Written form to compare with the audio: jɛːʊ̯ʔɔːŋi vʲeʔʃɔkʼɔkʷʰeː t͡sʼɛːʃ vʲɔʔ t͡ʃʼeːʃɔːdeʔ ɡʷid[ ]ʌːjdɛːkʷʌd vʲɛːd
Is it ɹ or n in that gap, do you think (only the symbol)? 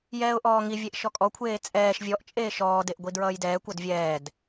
ɹ